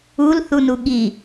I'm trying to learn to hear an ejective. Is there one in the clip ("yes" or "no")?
no